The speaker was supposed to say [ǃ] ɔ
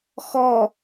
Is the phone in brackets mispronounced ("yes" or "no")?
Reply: yes